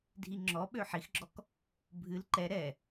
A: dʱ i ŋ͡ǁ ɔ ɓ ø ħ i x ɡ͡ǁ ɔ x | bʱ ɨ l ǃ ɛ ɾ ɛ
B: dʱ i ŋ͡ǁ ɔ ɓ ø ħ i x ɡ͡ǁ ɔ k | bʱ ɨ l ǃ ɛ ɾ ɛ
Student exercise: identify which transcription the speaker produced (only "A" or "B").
B